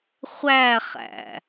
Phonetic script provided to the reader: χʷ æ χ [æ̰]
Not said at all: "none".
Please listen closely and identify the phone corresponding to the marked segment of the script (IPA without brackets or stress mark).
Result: æ̰